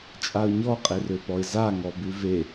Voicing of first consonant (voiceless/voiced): voiceless